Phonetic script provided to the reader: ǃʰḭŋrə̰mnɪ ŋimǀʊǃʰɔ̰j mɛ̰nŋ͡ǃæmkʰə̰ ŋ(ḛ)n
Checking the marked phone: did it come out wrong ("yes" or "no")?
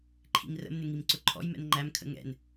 yes